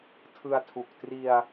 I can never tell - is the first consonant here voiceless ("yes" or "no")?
yes